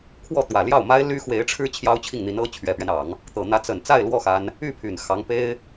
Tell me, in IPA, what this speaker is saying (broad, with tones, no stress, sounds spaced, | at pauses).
kʰ w ɔ˥˩ t̪ w ä˨˩ l j ɑ˥˩ ʊ̯ m a˥ ɪ̯ l y˥ x w e˧˥ ɪ̯ ʈ͡ʂʰ ɻ̩˥ t͡ɕʰ j ɑ˥ ʊ̯ t͡ɕʰ i˥˩ ŋ n̪ i˧˥ n ɤ˥ t͡ɕʰ ɥ ɛ˨˩ p ɥ ɛ˦ n ɑ˨˩˦ ŋ | t̪ ɤ˨˩ n̪ ä˧˥ t͡s ə˨˩ n t͡s a˥˧ ɪ̯ l w ɔ˥˩ x a˥ n | y˥˩ pʰ y˨˩ n x ɑ˧˥ ŋ p e˥ ɪ̯